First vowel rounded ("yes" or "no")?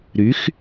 yes